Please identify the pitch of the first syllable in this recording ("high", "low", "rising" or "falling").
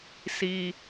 high